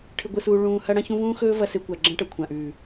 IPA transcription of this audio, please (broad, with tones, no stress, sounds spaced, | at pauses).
ʈʰ ɨ˧ ɡʷ ɨ˧ s uː˧ ɭ ũː˧ h ɐ˦ ɽ ɐ̃˦ ç ũ˦ v ũː˦ x ɵː˦ v ɐ˧ s e˧ kʷ a˨ ɡ͡ǁ ɐ̃˦ ʈ ɐ˨ kʷʰ ã˨ ʔ ʉː˨